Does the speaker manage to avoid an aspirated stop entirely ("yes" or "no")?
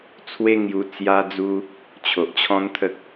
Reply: no